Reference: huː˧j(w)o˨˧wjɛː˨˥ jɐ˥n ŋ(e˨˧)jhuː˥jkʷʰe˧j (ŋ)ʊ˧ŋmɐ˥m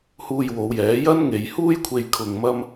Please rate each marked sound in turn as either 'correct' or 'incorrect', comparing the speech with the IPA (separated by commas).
correct, correct, incorrect